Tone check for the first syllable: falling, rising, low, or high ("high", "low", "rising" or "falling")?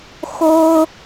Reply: high